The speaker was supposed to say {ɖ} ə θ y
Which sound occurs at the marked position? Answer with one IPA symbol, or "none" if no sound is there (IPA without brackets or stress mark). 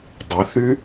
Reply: dˤ